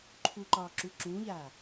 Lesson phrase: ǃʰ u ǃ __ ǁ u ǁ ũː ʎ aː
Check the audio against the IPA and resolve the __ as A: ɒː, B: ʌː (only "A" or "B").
A